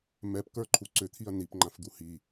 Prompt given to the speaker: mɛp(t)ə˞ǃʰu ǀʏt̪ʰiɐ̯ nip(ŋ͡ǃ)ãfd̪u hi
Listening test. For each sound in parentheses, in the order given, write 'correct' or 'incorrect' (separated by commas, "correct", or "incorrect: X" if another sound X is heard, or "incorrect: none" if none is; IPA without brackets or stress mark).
incorrect: k, correct